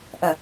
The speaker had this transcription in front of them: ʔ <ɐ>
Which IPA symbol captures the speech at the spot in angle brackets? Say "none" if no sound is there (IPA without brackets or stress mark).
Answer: ɐ